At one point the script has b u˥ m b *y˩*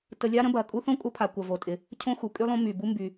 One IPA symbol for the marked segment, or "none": y˩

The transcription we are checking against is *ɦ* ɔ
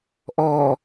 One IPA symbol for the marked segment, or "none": ʔ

